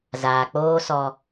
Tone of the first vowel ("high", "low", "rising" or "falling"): low